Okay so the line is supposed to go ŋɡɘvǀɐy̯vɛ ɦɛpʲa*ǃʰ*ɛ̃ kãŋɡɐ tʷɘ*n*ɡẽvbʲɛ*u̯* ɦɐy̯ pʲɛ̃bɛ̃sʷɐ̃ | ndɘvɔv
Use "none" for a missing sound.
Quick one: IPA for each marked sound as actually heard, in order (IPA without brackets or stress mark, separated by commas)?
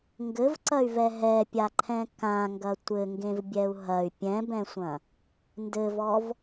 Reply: ǃʰ, ŋ, u̯